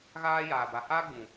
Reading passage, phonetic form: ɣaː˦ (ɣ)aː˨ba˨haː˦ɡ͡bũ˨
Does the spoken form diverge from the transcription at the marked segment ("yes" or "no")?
yes